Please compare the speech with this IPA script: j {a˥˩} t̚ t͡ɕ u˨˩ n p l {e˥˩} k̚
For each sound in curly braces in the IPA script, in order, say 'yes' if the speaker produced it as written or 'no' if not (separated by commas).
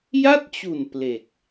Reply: yes, no